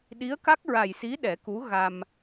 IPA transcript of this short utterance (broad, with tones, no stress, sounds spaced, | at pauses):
ɗ i˧˥ ə̯ k a˦˥ k̚ ɹ a˨˩ j s i˧˥ ɗ ɛ˨˩˦ k u˧˥ ɣ a˧ m